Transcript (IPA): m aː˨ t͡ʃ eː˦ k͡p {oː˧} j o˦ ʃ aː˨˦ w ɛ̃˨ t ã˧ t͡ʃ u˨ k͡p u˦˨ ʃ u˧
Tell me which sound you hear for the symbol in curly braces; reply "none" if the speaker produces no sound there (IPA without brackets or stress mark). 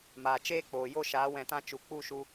oː˨